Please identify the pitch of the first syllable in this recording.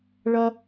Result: high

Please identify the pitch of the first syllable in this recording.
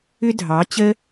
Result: high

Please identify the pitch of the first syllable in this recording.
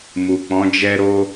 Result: low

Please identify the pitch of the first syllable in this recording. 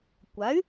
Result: rising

